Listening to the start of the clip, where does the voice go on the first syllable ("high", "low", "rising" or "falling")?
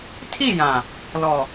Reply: falling